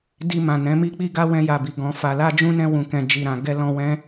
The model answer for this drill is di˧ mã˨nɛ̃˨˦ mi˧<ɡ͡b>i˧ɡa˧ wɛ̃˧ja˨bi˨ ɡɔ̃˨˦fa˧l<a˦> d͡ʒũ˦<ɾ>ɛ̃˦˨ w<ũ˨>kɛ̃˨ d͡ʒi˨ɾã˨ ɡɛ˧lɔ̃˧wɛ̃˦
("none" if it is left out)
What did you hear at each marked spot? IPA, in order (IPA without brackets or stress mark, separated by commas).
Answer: k͡p, a˦, n, ũ˨